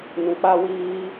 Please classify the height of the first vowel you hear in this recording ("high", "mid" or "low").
high